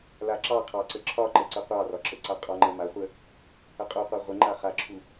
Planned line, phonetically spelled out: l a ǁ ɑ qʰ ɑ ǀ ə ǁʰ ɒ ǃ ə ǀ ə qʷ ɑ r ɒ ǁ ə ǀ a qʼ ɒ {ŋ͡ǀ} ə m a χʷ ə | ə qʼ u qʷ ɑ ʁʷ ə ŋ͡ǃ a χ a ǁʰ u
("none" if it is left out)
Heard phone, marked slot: ŋ͡ǃ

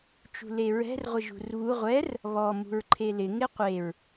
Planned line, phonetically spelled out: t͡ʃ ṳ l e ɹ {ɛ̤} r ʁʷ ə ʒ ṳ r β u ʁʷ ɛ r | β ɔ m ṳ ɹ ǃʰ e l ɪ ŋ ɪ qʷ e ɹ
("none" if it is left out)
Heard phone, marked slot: ɛ̤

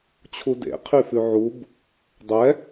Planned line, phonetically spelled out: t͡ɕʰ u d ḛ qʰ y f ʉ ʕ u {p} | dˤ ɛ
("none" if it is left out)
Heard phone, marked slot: b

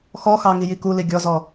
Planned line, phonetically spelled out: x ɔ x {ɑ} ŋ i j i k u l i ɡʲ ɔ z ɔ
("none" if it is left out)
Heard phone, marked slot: ɑ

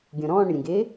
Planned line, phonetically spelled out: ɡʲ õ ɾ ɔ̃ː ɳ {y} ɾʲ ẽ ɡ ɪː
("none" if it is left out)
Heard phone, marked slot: ɪ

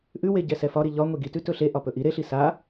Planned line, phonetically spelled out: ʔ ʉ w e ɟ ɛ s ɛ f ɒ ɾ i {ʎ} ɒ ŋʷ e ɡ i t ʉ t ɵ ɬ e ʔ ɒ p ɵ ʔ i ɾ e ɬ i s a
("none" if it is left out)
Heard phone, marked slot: ʎ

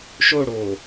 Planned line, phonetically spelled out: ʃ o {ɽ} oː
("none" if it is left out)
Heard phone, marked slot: ɽ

